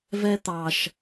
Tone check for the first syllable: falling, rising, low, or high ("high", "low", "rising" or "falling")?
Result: high